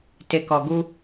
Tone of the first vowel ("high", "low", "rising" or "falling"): low